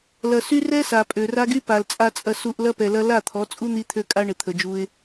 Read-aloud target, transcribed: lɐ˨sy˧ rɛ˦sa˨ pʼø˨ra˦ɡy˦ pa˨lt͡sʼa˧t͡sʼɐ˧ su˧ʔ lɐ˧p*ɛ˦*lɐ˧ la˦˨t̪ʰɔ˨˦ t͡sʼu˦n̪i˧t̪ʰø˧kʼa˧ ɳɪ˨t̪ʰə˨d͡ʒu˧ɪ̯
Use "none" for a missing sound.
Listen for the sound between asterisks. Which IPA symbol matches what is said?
ɛ˨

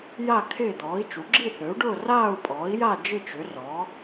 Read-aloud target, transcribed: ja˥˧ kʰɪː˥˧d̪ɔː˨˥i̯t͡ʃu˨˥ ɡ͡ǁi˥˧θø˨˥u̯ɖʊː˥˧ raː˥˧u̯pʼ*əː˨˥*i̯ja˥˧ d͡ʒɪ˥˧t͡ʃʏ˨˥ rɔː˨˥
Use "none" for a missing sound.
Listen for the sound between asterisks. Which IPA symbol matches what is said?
ɔː˨˥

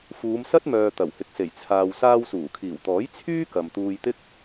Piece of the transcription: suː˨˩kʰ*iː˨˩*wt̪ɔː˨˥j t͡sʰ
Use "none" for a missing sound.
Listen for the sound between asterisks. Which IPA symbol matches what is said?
iː˨˩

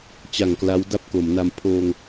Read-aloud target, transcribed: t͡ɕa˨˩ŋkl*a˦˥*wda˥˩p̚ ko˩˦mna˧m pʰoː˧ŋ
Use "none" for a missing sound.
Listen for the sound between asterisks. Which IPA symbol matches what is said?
a˦˥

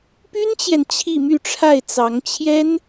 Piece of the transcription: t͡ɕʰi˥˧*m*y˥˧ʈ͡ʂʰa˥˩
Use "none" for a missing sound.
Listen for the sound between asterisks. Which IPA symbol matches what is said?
m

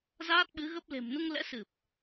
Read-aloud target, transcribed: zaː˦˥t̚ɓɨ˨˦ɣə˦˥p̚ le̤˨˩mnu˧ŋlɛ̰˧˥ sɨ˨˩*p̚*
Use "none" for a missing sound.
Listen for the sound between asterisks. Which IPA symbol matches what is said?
p̚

